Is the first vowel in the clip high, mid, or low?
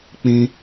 high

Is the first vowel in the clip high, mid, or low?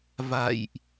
low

